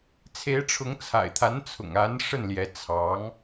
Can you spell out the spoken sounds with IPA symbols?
t͡sʰ e˧˥ ɪ̯ ʈ͡ʂʰ ʊ˧˥ ŋ t͡sʰ a̰˨˩ ɪ̯ t̪ʰ a˧˥ n t͡sʰ ʊ̰˨˩ ŋ a˧˥ n ʂ ə˥˩ n l j ɛ˧˥ t͡sʰ ɑ˧˥ ŋ

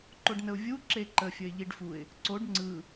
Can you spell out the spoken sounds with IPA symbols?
ǃ o ɖ n ə ʊ̯ vʲ u ǁ e ǃ ə fʲ ə ɪ̯ ʎ i ɖ f u ɪ̯ | ǀ o ɖ ŋ͡ǀ ɯ

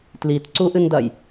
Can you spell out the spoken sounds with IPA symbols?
t l i t ǀ u ʔ ɨ n d ɐ j

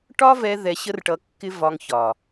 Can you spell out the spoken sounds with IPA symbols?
ʈ ɒ˦ v ɛ˧ ð ɛ˧ ɕ ə˦ r ʈ ʌ˧ kː ɪ˦ v ɒ˧ ŋ ç ɒ˨

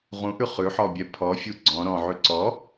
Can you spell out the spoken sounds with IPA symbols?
ʁ ũ ʔ ʉ χ ʉ ħ ɔ bʲ ɛ pʰ ɔ fʲ u ɡ͡ǀ ɔ̃ ɾ ɔ̃ ʕ ʉ ǀ ɔ

